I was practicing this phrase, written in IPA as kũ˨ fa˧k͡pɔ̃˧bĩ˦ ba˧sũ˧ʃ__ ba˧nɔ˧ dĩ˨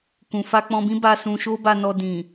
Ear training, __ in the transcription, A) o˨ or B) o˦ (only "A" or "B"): B